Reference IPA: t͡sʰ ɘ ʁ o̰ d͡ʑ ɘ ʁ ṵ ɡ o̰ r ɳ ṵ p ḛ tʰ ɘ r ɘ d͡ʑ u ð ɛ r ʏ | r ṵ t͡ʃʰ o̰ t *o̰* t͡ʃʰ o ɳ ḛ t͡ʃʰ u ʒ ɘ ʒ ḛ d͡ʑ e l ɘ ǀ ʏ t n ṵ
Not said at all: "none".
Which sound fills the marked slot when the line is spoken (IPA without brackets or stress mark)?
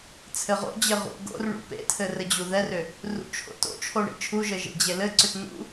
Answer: o̰